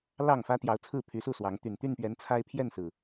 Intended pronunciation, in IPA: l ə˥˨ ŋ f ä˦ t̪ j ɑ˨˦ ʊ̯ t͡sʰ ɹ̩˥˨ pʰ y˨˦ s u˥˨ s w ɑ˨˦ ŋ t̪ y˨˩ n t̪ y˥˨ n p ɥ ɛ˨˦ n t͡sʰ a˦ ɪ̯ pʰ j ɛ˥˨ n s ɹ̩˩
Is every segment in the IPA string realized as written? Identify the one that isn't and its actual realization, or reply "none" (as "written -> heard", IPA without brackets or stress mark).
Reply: ə˥˨ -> ɑ˥˨